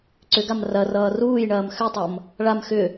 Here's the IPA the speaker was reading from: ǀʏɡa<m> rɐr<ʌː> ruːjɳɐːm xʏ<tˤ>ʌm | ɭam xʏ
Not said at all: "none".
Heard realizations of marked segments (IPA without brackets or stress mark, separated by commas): m, ʌː, tˤ